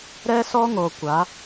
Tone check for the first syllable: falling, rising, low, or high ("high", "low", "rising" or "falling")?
high